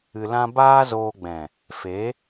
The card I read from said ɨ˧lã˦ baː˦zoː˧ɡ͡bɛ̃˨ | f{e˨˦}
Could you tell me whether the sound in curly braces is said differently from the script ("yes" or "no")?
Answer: no